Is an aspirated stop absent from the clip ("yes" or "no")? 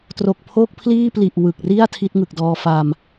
no